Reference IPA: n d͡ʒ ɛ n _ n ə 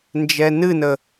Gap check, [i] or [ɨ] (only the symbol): ɨ